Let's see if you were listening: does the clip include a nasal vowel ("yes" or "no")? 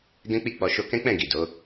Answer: yes